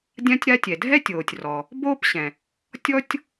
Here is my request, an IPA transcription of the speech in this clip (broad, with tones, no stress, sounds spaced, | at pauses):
dʲ ã˥ tʲ ɾ a˥ tʲ ɛ˩ dʱ ɛ˥ tʲ oː˩ tʲ r ɔ˩ | b oː˥ p ɕ ɛ̃˩ | tʲ ɔ˥ tʲ